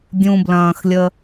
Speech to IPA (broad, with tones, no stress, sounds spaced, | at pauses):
dʲ ũ˩ b l ɐ̃ː˩ x lʲ ə˩